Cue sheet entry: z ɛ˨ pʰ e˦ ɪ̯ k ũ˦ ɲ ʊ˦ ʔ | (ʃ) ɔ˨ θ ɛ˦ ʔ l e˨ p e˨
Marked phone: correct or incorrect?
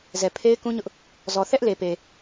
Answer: incorrect